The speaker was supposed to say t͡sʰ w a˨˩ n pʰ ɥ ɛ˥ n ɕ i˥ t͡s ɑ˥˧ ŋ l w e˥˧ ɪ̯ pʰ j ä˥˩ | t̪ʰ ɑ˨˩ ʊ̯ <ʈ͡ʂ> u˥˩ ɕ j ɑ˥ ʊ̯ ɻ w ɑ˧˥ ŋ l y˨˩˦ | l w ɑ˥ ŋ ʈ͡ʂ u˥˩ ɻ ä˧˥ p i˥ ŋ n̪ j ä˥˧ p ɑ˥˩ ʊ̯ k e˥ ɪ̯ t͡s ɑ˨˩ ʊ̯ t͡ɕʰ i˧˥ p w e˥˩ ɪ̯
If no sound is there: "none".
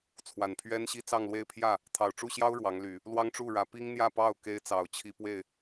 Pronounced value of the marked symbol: ʈ͡ʂ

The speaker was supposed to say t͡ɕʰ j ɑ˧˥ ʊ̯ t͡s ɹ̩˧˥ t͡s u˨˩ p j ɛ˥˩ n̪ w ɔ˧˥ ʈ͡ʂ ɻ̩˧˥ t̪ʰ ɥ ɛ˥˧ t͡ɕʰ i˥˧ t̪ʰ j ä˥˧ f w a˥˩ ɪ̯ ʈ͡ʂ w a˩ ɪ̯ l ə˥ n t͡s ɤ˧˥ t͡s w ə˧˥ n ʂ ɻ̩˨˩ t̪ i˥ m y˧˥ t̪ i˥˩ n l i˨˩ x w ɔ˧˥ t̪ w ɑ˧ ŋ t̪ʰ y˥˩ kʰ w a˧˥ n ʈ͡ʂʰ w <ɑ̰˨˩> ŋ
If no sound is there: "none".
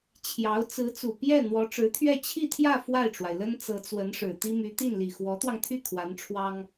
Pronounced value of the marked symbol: ɑ˥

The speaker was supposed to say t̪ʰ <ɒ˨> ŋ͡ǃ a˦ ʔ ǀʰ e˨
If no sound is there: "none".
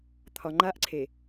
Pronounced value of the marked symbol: ɒ˨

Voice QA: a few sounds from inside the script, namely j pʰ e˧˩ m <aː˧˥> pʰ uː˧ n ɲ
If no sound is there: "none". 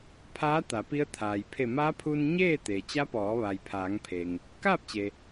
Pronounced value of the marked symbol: aː˧˥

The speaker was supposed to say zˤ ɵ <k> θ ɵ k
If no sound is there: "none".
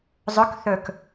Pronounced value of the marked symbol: k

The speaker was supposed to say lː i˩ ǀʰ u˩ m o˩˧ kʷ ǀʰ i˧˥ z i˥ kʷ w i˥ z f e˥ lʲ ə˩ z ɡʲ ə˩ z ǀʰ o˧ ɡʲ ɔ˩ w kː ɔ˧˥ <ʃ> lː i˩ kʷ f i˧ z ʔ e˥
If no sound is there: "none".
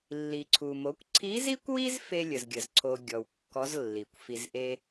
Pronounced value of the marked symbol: z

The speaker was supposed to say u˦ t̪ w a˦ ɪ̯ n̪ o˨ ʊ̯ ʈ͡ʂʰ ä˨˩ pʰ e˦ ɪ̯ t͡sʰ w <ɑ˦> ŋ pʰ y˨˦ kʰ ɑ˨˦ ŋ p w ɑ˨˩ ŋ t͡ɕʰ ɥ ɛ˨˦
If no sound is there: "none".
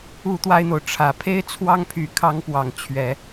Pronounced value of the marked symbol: ɑ˦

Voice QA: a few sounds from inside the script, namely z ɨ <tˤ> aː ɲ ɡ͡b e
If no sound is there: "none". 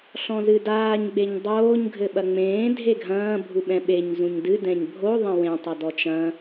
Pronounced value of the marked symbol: d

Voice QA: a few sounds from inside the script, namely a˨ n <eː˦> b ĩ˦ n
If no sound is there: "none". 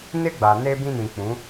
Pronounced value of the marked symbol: eː˦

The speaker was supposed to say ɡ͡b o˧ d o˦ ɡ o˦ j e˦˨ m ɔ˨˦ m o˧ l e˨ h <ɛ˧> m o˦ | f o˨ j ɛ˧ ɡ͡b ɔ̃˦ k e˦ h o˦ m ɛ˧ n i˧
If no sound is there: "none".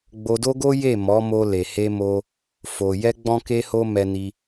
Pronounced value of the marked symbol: e˧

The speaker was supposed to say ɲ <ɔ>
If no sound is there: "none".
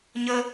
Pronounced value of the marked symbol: ə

